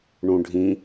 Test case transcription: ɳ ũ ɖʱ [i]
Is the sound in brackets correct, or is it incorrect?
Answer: incorrect